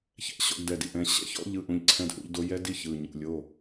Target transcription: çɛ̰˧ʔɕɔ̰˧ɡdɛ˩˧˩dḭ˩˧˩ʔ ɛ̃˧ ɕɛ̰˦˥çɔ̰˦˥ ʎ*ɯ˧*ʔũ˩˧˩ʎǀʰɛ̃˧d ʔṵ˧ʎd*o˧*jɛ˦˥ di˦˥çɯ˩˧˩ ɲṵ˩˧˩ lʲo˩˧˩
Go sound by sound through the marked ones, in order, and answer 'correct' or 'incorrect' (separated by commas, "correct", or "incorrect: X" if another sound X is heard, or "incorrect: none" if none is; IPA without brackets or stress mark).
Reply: correct, correct